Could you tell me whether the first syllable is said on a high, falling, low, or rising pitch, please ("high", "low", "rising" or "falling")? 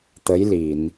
rising